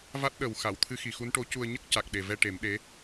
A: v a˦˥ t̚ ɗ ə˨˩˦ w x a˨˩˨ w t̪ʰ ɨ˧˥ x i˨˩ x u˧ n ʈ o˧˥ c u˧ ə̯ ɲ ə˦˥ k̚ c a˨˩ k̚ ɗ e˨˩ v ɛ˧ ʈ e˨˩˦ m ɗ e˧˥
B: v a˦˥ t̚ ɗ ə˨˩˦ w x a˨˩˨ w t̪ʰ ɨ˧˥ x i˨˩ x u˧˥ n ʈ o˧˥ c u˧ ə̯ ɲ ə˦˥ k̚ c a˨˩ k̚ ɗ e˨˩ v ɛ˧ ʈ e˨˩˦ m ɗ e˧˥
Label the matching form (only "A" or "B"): B